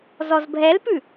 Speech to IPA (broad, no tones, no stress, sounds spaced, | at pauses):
z ɔ z bʱ ɛ l p ʉ